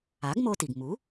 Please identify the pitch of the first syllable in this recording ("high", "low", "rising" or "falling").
rising